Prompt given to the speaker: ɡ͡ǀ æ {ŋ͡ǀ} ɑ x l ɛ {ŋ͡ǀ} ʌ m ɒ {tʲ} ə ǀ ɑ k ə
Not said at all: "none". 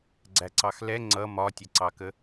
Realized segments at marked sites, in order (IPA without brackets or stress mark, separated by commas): ǀ, ŋ͡ǀ, tʲ